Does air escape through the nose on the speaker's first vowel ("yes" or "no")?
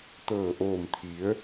no